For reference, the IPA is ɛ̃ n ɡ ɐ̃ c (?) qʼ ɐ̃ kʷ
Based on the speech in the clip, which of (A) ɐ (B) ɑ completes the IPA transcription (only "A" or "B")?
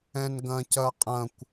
A